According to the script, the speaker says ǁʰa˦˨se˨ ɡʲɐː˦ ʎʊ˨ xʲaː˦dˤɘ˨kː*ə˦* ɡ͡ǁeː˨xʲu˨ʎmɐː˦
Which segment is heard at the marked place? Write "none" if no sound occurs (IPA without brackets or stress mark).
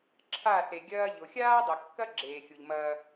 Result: ɐ˦